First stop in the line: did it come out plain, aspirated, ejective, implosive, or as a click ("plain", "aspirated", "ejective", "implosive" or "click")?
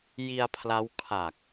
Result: aspirated